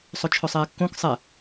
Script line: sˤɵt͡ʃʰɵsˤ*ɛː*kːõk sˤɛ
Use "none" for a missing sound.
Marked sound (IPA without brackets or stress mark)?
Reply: ɛː